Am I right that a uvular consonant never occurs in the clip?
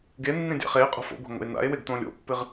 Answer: no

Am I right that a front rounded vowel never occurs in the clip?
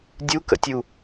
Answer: yes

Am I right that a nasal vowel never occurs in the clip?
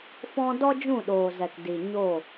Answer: no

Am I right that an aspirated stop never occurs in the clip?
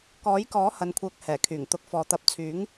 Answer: no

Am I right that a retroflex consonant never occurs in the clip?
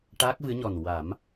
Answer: no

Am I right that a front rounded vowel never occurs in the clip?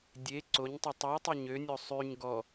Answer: no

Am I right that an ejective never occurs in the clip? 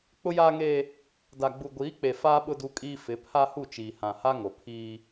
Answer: no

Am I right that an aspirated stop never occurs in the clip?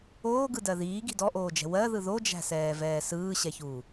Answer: yes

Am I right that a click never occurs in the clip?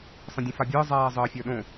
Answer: yes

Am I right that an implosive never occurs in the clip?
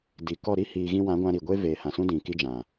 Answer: yes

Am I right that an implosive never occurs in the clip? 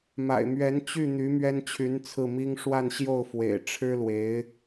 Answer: yes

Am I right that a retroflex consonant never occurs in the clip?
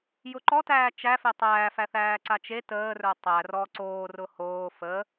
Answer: yes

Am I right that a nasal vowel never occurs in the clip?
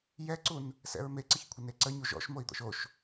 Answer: yes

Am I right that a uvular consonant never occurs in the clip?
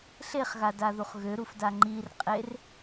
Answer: no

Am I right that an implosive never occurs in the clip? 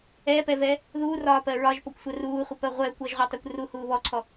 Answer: yes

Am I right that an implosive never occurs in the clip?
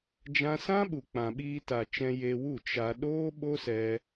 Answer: no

